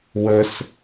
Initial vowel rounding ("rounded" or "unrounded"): unrounded